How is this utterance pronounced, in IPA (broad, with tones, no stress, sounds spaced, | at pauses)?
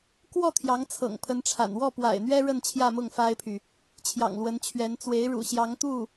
k w ɔ˥˩ t̪ʰ j ɑ˧˥ ŋ t͡sʰ ɤ̰˨˩ ŋ pʰ ə˧˥ n ʈ͡ʂʰ a̰˨˩ n w ɔ˥˩ p w a̰˨˩ ɪ̯ n̪ ɥ ɛ˥ ɻ ə˥˧ n t͡ɕʰ j ä˥˧ m ʊ˥˩ ŋ f a˥ ɪ̯ pʰ y˨ | t͡ɕʰ j ɑ̰˨˩ ŋ l w ə˧˥ n t͡ɕʰ ɥ ɛ˧˥ n t͡s w e˧˥ ɪ̯ ɻ ṵ˨˩ ɕ j ɑ˧˥ ŋ t̪ u˥˩